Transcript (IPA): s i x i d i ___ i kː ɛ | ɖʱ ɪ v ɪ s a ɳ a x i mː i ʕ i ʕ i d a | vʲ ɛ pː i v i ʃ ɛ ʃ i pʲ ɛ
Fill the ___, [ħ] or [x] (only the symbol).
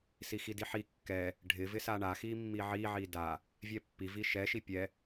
ħ